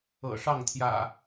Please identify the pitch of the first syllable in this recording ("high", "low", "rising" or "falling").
low